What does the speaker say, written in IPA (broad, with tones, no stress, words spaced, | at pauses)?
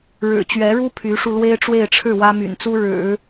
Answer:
ɻɻ̩˨˩t͡ɕɥɛ˧˥ɻu˥ pʰy˧˥ʂu˧ lwe˥ɪ̯ʈ͡ʂwe˥˧ɪ̯ʈ͡ʂʰɻ̩˥˩ wä˥my̰˨˩n t͡su˥ɻɻ̩˨˩˦